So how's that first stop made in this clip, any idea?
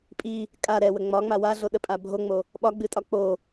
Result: ejective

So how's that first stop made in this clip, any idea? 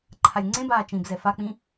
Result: click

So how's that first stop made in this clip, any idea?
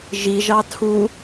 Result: aspirated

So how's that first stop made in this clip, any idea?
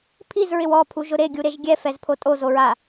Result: aspirated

